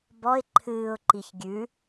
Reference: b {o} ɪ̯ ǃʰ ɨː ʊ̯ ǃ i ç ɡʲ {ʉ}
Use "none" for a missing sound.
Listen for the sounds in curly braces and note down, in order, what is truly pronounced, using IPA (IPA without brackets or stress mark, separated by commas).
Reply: ɔ, ʉ